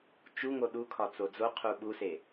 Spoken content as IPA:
t͡ʃ u ŋ o ɗ u kʰ ɒ t͡s o d͡z o qʰ u ɓ u s e

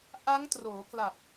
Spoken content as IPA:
ʔ a˦˥ ŋ t r oː˩˦ k l a˨˩ p̚

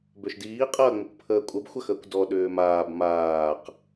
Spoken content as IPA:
b ø ʃ d iː qʼ ɐː ŋ͡m ə kʷ pʰ əː kʷʼ ɐ b xʷ ɐ x əː kʷ d ɔ ɗ ʏː m aː b m aː q

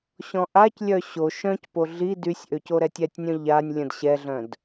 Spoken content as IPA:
ɕ ɔ̃ ʔ a c lʲ œ ɕ o ʃ œ̃ c p o ɮ i d y sʲ ʔ ø c o ɾ ɛ tʲ ɛ tʲ nʲ œ̃ ʎ a nʲ lʲ ə̃ d ɕ ɛ ɮ œ̃ d

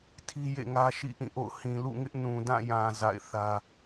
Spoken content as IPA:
tʰ i˦ j ḛ˦˨ ŋ ä˦ ʃ ḭ˦˨ ʔ ĩ˦˨ ʔ o̰˦˨ ʊ̯ h ĩ˨ l ṵ˦˨ ŋ ɪ˦ ʔ n ũ˨ d ã˦˨ j ã˨ z a̰˦˨ ɪ̯ θ ä˦

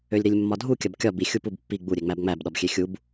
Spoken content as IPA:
ø lʲ ɾ i lʲ mː ɒ dʱ u kʲ ɐ b kʲ ɒ b i xʲ u p u b pː i ɡ͡b u ɾʲ e ŋ͡m æ b ŋ͡m æ b ɗ ɒ b xʲ e xʲ u b

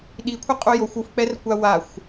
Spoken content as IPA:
ɗ i kʷʰ ɪ qʼ u j o xʷ u f k͡p ɛ r kʷ a w a xʷ

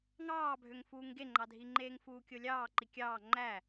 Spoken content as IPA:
ŋ ɑː bʱ ø ŋ f uː ŋ ɡ e ŋ͡ǃ ɑ dʱ i ŋ͡ǃ eː ŋ f uː kʲ o lʲ ɑː ǃ i kʲ ɑː ŋ͡ǃ æ

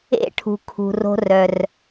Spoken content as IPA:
ḛ˦˨ ʈʰ ṳ˨ kʰ ṳ˨ r o̤˧ r œ˨ r

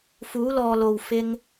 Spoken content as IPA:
f uː˨˧ l ɔː˨ l o˨ w f ɪ˧ ŋ

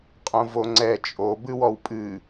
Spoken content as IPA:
qʼ õ v o ŋ͡ǀ ɛ t͡ʃʼ o b ɨ w ɔ w pʼ ɨ

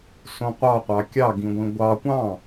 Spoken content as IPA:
s õ qʷ ɑ qʷ ɑ kʲ ɑ ɡ ĩ ɡʷ ĩ ɡʷ ɑ kʷ ɑ̃

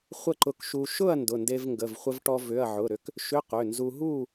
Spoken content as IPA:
χʷ ə˥˨ ǃ ʊ˧ k ʃ u˧ ʃ ʊ˥˨ ɐ̯ n d ʊ˩˧˩ n d e˧ v ŋ ɡ ə˩˧˩ v χʷ ə˧ v ʈ ɔ˧ v ʏ˩˧˩ ɐ̯ ʕ ʊ˩˧˩ ɾ ʏ˧ k | ʃ ʏ˧˥˧ q ʏ˩˧˩ n z u˧ ɦ u˥˨

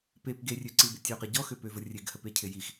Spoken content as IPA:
p e p ɡ e rʲ ø ǀ i b ɪ tʲ ø q ɪ ɟ ɔ x ø p ø v ə rʲ e ɡ h ə p e cʰ ɪ j i x

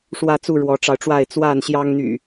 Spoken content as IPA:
ʂ w ä˥˨ t͡s u˥˨ ɻ w ɔ˨˦ ʈ͡ʂ ɑ˧ ʊ̯ ʈ͡ʂ w a˥˨ ɪ̯ t͡s w a˥˨ n ɕ j ɑ˦ ŋ n̪ y̰˨˩

